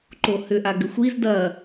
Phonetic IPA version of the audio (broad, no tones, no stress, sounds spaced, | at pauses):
ǃ o h ʏ ʔ a ɡ ʏ xʷ i z d ɐ